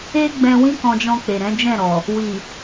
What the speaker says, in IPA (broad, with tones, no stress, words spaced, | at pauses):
e˦ɡ͡bɛ̃˧ wĩ˦kɔ̃˧d͡ʒɔ̃˧k͡pe˨ ɾɛ̃˨˦d͡ʒɛ̃˦˨ɾɔ˨ | wi˨